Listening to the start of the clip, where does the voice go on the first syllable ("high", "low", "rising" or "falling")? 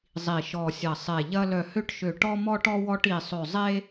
low